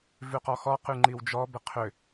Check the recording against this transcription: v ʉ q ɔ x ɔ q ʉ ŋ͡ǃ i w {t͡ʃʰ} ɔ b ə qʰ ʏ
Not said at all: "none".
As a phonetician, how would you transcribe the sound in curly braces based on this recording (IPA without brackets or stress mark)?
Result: d͡ʒ